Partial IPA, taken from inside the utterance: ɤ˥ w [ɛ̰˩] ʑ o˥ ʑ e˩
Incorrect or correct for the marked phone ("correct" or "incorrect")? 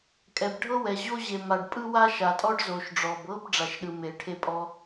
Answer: incorrect